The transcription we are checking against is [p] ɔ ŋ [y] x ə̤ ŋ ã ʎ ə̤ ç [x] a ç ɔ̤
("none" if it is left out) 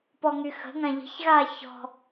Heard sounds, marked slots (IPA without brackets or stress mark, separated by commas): p, y, ɣ